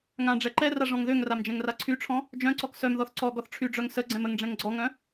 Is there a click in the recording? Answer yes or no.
yes